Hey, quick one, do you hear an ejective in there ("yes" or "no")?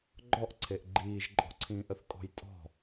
yes